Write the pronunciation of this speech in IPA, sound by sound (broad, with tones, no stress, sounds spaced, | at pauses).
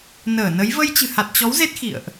n əː˧˩ n ə˨˦ j v ə˧ j t͡ɕ ɨ̤˨˩ h a˨˩ t̚ t͡ɕ ɔ˨˦ w z e˦˥ t̚ x ḭ˧˨ ə̯ ʔ